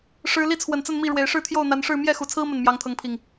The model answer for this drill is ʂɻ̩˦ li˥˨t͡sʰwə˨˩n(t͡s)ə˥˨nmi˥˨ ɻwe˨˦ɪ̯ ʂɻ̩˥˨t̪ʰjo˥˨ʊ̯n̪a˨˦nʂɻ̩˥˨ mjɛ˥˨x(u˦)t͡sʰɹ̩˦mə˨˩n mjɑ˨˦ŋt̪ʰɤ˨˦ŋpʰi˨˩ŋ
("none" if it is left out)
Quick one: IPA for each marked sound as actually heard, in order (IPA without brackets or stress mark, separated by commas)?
t͡s, u˨˩